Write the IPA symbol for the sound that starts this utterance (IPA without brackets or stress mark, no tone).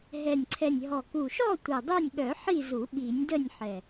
ɦ